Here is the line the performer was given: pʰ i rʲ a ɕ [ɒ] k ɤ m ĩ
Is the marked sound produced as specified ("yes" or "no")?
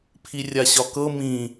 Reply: yes